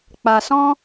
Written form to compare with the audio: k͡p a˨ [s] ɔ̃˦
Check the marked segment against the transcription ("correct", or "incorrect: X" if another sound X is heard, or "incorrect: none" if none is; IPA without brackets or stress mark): correct